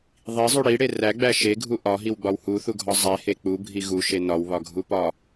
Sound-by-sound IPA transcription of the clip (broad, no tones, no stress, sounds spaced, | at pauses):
ðˤ i zˤ u ɽ i ɽ e r æ ɡ͡b æ ʃ e ɡʱ u ʔ ɒ ɦ i w ɡ͡b ɒ w h u θ u ɡʱ ɒ zˤ e h e k͡p u bʱ i ɣ u ʃ e n ɒ w β ɒ ɡʱ u p ɒ